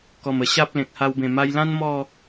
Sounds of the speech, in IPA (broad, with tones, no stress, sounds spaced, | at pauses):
k ɔ˨˩ m ə˨˩ ɕ a˦ p̚ l ẽ˨ k̚ h a˧ w b ẽ˨˩ m a˧ j l ã˦ n m ɔ˥˧